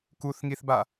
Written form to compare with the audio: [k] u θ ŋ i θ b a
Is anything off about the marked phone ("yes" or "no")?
no